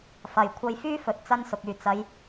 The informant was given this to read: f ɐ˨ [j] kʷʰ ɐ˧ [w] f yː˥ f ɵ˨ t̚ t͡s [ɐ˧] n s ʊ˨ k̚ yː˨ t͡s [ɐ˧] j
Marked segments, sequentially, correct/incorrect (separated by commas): correct, incorrect, incorrect, incorrect